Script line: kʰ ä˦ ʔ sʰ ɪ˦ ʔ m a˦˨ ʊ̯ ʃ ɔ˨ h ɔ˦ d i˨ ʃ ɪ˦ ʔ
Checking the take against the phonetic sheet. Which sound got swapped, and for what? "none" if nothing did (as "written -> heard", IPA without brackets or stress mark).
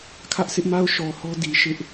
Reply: none